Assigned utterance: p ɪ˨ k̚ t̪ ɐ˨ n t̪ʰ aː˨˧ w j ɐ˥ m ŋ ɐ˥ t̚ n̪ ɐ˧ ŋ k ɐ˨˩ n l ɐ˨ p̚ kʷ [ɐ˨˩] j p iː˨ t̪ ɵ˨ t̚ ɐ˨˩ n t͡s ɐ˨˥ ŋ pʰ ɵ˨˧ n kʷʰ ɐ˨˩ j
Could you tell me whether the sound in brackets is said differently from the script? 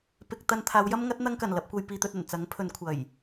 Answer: yes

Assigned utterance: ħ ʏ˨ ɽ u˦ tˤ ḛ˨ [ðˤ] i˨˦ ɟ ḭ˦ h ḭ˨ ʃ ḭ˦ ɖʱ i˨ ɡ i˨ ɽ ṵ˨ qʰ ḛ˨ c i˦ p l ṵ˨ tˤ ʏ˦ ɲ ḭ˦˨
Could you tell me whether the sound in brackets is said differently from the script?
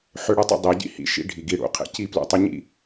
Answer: yes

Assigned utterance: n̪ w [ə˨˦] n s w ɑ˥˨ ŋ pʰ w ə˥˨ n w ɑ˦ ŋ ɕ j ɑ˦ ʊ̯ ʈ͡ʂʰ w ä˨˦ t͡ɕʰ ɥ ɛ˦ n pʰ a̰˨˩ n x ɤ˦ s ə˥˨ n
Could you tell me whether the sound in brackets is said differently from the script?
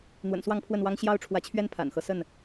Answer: yes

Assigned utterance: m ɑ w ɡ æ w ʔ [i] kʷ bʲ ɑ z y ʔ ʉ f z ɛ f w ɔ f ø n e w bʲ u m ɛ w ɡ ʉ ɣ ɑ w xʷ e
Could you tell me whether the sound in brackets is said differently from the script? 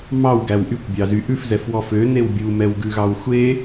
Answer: yes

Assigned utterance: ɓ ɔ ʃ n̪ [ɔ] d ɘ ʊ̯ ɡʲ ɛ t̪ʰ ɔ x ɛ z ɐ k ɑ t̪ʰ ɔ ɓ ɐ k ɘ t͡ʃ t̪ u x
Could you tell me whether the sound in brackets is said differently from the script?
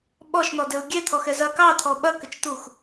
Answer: no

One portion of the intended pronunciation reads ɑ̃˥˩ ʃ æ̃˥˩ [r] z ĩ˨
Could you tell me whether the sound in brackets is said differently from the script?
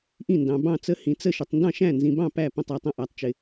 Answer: yes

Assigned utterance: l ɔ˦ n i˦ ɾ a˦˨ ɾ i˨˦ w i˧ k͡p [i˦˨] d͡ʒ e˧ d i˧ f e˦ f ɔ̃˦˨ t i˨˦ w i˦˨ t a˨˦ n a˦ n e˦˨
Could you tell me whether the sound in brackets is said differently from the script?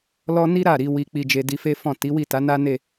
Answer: yes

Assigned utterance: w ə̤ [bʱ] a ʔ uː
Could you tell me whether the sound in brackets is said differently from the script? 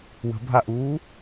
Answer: no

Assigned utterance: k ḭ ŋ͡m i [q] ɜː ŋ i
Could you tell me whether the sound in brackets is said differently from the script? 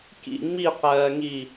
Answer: no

